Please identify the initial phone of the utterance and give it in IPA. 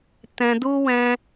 t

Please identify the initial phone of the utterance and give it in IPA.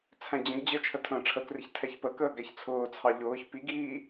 t͡sʰ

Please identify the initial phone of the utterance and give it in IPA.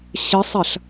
ɕ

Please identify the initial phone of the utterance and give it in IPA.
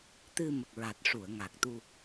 t̪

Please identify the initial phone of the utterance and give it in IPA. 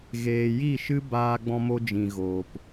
ɣ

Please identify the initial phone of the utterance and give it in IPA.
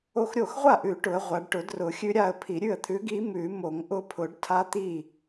o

